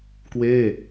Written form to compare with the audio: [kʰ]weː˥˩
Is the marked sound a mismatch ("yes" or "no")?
yes